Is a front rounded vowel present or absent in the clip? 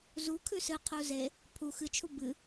absent